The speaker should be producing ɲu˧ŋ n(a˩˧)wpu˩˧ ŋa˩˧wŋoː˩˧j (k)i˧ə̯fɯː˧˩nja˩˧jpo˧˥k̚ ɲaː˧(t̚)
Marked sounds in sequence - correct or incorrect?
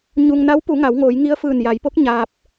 incorrect, incorrect, incorrect

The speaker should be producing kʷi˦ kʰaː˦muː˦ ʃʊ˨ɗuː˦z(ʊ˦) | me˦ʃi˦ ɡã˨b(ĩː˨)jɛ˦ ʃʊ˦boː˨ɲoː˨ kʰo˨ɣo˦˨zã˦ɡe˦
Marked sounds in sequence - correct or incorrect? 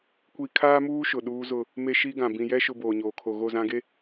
correct, incorrect

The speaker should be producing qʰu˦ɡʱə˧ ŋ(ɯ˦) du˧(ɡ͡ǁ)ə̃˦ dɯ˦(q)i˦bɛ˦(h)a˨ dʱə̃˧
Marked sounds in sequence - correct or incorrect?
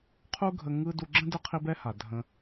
correct, correct, incorrect, correct

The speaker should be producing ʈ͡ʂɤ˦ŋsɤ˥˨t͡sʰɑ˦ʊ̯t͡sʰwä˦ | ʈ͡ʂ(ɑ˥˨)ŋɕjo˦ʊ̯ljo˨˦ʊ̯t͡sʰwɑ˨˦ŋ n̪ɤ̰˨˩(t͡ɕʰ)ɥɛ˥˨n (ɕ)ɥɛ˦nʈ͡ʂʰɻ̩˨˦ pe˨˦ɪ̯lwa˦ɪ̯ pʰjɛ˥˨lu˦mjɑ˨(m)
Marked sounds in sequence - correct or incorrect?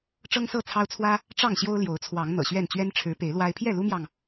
correct, incorrect, incorrect, incorrect

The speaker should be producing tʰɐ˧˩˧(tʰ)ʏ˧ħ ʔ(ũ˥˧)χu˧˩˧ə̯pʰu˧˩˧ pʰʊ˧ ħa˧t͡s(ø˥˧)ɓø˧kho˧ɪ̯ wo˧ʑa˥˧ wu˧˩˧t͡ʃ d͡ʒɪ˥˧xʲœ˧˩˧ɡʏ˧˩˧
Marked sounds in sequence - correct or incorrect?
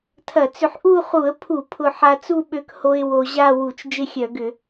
incorrect, incorrect, incorrect

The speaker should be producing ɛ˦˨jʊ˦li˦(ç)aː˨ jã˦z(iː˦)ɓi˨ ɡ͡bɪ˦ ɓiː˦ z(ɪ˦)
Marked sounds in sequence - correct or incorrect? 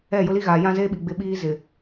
incorrect, incorrect, incorrect

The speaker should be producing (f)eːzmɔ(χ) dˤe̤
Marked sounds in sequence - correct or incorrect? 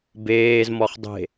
incorrect, correct

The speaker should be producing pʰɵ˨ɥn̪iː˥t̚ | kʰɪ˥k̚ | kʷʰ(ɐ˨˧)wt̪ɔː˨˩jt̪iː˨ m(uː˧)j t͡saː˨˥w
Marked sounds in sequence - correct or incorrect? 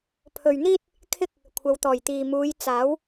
correct, incorrect

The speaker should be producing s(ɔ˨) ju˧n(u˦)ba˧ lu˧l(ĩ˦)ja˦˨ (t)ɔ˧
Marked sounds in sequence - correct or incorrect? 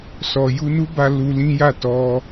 correct, correct, correct, correct

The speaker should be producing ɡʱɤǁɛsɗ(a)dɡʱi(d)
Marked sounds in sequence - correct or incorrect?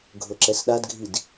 correct, correct

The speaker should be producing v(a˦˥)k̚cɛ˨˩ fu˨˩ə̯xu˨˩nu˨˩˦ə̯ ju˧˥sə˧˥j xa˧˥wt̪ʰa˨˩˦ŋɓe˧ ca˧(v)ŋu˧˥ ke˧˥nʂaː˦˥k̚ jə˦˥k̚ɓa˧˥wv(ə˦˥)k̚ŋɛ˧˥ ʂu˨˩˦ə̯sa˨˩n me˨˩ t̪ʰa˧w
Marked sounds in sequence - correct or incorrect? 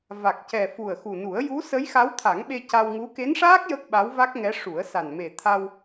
incorrect, incorrect, incorrect

